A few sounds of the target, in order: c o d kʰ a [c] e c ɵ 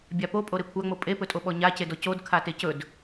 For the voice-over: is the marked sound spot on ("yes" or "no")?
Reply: no